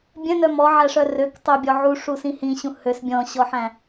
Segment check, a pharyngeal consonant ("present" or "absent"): present